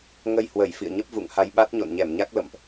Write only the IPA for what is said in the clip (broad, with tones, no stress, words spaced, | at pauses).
ŋə˧jhwə˧˩j fḭ˧˨ə̯ɲə˦˥p̚ vṵ˧˨ŋha˧j ɓa˦˥t̚ ɲo̰˧˨nɲɛ˧˩mɲa˦˥k̚ lə̰˧˨mʔ